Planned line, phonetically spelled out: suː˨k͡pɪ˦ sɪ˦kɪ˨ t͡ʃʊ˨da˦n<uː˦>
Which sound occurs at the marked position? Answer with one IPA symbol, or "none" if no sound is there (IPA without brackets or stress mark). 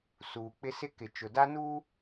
uː˦